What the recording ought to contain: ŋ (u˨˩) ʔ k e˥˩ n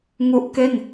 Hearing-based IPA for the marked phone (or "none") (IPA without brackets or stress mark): u˦˥